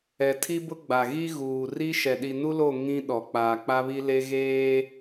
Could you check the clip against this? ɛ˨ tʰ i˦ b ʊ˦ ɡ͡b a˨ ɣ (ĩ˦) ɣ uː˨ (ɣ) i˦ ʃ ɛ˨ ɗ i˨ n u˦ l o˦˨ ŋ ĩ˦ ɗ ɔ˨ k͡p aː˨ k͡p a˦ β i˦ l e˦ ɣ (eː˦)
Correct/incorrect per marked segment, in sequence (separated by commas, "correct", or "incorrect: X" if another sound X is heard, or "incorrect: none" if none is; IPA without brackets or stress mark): incorrect: i˦, incorrect: r, correct